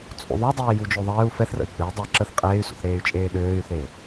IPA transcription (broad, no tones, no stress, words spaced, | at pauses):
t͡sʼṵðˤodˤeː jud͡ʒoðˤeːu̯ fɛθrə̰i̯ ɡ͡bɛi̯ dˤəːǁəθ qʼeːy̯sṵθ ɾeːy̯t͡ʃʼeːɗøːy̯θeː